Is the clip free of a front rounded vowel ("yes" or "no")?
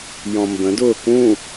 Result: yes